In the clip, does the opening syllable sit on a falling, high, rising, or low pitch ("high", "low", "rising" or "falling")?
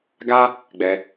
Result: high